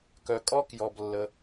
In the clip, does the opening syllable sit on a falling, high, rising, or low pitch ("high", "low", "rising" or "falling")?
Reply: low